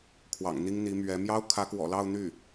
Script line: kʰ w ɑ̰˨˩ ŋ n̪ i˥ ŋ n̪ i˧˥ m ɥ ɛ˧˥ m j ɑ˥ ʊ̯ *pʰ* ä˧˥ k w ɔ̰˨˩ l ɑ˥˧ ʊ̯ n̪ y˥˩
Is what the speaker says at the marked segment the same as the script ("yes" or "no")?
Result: no